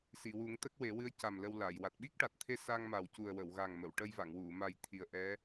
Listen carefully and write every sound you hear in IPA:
s i˨˩˨ w u˨˩˦ ŋ t̪ ə˦˥ k̚ w e˨˩˦ w ɨ˧˥ ə̯ c a˨˩ m l ə˧ w l a˨˩˨ j w a˨˩ t̚ ɓ i˦˥ k̚ ʈ a˨˩ t̚ t̪ʰ e˧ s a˧ ŋ m a˨˩ w c u˨˩ ə̯ w ə˨˩˨ w ɣ a˨˩ ŋ m ə˨˩˨ w ʈ ə˧ j v a˨˩˨ ŋ w u˨˩˨ m a˨˩ j t̪ʰ i˨˩ ə̯ ʔ ɛ˧˥

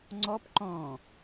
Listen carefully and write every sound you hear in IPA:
ŋ͡ǀ ɔ p ǃ ɔ̃

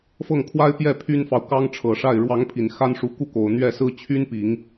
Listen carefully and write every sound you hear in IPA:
f ɤ˥˩ ŋ kʰ w a˥ ɪ̯ p j ɛ˥˩ pʰ y˥ n f ɑ˨ ʊ̯ k ɑ˥ ŋ ʈ͡ʂʰ ɤ˨˩ ʂ a˥˩ ɪ̯ ɻ w ɑ˧˥ ŋ pʰ i˨˩ n x a˥ n ʂ u˧˥ k u˥ k o˨˩ ʊ̯ n̪ ɥ ɛ˥˩ s ɹ̩˥ t͡ɕʰ y˥ n p i˨˩˦ ŋ

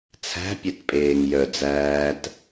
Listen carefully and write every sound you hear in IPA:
t͡sʰ æ̤ pʲ e t pʼ eː ŋ j œ d͡z æː t

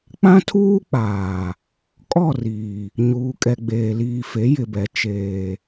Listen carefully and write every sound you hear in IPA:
k͡p ã˦ tʰ uː˦ k͡p aː˨ | kʼ ɔ˦˨ r iː˨ | ɲ uː˨ kʼ ɛ˨ ɡ͡b eː˨ l iː˨ f e˨˦ j ɪ˨ b ɛ˨ t͡ʃ eː˨

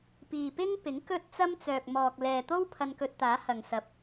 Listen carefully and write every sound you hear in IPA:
p iː˨ p ɪ˥ ŋ p ɪ˨˥ ŋ k ɵ˥ t̚ t͡s ɐ˥ m t͡s œː˨ k̚ m ɔː˨ k̚ l ɛː˨ t̪ o˥ w pʰ ɐ˧ n k ɵ˧ t̚ t̪ aː˨˥ h ɐ˨ ŋ s ɐ˨ p̚

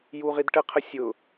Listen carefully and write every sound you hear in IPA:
j u ʁ i d ʈ ə qʰ ə sʲ ʊ

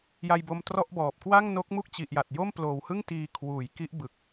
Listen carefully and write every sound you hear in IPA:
j a˧ j b o˧ m t r ɔ˥˩ ʔ b ɔː˨˩ p̚ k w a˥˩ ŋ n o˦˥ k̚ m u˥˩ k̚ t͡ɕ i˨˩ ʔ j a˨˩ t̚ j o˥˩ m p l oː˨˩ w h ɯ˥˩ ŋ t iː˧ kʰ w uː˩˦ j k i˦˥ ʔ b ɯ˨˩ k̚

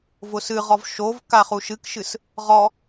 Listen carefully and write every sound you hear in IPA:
v ʊ s ɨ ʁ ɔ v ʃ o v k a χ u ʃ ɨ k ʃ ɨ s | ʁ ɔ

